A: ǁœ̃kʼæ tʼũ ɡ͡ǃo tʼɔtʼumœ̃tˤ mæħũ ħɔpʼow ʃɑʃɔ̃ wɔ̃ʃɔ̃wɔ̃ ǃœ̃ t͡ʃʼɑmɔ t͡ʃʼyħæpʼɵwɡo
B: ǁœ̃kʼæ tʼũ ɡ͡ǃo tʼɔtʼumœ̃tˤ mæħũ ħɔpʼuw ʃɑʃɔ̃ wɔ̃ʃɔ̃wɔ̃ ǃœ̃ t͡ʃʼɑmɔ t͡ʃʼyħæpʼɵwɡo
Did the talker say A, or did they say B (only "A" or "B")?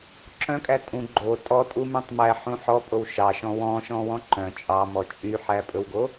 A